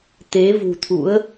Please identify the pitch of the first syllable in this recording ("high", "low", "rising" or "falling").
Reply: rising